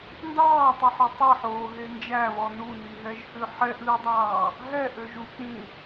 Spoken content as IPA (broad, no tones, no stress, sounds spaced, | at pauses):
n d ɑː tˤ i ħ ø tˤ ɛ ħ oː ɦ e n d͡ʒ æ β ɔ n u n i ɦ ɛ ʒ h ʉ ħ ɛ ʔ ð i dˤ ɑː | ɦ ɛ ʔ ø ʒ u k͡p ĩ